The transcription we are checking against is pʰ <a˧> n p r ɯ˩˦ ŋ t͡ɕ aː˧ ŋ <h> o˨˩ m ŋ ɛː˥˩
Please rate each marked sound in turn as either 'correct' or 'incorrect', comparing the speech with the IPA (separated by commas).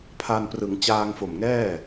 correct, incorrect